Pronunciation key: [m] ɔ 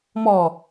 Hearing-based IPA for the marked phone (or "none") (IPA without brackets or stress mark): m